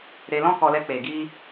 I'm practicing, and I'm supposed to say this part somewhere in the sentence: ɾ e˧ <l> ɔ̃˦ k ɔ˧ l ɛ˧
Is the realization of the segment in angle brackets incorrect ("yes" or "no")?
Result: no